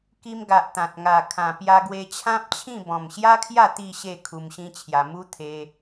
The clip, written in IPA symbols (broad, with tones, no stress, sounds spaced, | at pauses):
k i˧ m ɡ a˨ ʔ t̪ ã˨ t̚ ŋ a˨˩ kʰ ã˨˩ p j a˧ ɡ w e˧ t͡ɕʰ ã˦ p̚ t͡ɕʰ ĩ˥˧ b ɔ̃˨˩ m ɕ j a˦ kʰ j a˥˧ t̪ i˥˧ ɕ e˥˧ kʰ u˧ m ɕ ĩ˦ t͡ɕʰ j a˧ m u˦ t̪ʰ e˧